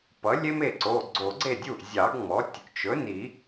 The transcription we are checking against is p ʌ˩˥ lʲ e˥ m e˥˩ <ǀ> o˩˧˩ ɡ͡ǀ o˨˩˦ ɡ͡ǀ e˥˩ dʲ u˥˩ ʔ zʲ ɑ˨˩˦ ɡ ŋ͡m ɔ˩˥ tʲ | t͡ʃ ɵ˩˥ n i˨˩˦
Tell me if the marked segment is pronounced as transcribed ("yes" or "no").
yes